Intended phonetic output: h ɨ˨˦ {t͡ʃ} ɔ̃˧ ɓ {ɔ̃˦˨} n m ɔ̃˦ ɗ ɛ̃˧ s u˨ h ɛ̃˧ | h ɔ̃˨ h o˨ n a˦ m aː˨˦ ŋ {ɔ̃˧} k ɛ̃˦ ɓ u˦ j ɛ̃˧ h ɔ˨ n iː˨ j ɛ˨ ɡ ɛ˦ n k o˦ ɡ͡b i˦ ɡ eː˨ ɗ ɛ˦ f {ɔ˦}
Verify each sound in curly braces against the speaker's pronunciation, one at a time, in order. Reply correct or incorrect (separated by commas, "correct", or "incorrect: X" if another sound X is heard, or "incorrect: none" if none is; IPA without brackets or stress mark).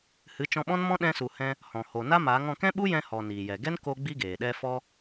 correct, incorrect: ɔ̃˦, correct, correct